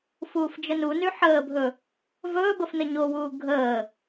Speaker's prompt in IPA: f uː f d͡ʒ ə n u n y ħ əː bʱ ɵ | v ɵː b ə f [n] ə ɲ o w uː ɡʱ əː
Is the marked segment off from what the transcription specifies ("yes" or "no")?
no